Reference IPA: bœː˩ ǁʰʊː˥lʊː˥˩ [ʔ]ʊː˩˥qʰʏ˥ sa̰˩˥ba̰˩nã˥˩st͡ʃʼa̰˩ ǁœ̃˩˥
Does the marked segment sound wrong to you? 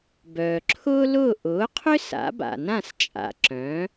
no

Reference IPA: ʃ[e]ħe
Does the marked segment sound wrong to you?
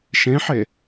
yes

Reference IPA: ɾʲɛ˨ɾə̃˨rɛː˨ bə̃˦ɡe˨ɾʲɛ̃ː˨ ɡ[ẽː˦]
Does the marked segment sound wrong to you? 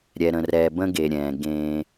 no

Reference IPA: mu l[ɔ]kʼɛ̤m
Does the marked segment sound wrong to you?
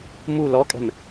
no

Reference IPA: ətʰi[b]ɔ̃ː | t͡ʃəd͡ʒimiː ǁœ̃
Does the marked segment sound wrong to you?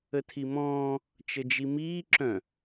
yes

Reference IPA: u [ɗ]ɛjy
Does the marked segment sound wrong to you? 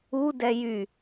yes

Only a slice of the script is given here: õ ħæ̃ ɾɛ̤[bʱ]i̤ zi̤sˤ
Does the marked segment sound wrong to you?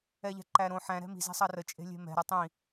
yes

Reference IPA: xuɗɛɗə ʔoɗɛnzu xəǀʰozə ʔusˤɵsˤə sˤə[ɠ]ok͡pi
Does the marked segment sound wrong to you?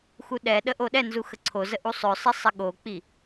no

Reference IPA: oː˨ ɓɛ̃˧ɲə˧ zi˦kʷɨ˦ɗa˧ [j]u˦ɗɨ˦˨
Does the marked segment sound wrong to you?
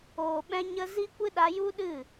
no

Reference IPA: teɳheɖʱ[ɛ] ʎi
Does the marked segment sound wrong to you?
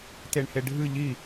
yes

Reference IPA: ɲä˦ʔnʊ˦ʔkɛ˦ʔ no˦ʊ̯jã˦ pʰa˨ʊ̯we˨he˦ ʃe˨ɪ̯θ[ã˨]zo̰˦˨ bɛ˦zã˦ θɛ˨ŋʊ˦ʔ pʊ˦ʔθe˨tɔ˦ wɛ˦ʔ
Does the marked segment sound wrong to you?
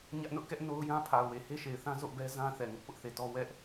yes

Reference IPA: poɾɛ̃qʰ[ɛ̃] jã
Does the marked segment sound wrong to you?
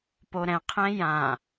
no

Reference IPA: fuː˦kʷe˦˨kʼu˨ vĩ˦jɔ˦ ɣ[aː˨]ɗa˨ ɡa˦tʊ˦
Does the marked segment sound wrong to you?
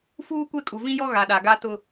yes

